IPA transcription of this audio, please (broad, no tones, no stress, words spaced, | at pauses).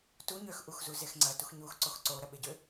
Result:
tu ɲøxʔuxzuzex ŋ͡ǀɐtux ɲuxǀox ǀoɾɐɓeɟø